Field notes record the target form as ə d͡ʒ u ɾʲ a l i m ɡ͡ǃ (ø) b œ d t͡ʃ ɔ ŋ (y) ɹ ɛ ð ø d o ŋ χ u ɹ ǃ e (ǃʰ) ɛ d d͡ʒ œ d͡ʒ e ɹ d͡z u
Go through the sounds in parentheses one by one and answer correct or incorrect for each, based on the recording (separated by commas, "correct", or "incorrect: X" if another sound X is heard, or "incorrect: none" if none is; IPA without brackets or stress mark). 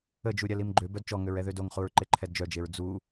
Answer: correct, incorrect: ø, correct